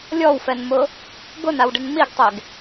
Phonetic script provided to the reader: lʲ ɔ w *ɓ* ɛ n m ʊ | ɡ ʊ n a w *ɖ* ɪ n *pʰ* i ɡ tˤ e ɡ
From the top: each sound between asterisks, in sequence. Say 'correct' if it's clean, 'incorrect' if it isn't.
incorrect: f, correct, incorrect: m

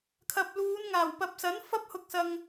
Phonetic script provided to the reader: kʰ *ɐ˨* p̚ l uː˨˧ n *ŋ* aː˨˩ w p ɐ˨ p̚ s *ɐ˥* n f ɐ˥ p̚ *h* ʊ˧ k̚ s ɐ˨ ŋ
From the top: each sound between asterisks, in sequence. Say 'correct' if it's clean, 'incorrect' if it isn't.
correct, correct, incorrect: ɐ˨˥, correct

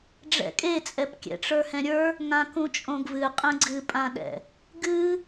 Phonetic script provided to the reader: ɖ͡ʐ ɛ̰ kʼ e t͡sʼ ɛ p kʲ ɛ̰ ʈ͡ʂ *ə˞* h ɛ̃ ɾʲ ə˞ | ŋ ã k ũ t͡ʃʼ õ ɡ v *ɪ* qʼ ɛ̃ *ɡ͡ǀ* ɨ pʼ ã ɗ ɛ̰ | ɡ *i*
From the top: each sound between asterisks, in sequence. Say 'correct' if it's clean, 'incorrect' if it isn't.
correct, incorrect: ɨ, correct, incorrect: ɨ

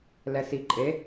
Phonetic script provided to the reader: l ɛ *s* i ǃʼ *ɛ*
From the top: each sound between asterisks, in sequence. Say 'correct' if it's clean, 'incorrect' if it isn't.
correct, incorrect: e

